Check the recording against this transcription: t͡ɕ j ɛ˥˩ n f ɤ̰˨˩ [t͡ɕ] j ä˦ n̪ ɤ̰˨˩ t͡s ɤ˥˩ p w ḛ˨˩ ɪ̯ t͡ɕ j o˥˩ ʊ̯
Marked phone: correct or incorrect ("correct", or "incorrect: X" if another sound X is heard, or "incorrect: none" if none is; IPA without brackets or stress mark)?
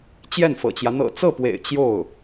correct